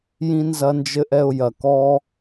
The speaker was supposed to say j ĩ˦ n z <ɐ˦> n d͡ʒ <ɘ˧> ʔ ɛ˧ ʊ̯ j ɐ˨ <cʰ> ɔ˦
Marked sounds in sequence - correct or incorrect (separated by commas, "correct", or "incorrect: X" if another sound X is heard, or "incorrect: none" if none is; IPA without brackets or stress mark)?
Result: correct, incorrect: ɘ˦, incorrect: k